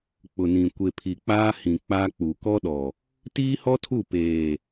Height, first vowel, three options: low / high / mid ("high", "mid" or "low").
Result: high